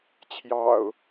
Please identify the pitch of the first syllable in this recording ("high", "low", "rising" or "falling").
low